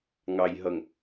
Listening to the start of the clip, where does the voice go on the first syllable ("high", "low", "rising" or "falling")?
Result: low